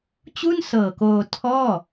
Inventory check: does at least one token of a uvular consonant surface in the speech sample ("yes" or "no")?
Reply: no